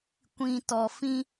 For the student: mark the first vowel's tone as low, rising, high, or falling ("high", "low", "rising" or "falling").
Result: low